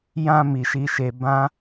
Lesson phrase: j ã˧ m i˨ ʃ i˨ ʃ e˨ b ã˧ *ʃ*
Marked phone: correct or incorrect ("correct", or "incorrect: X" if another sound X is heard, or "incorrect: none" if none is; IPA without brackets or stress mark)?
incorrect: none